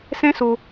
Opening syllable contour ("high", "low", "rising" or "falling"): high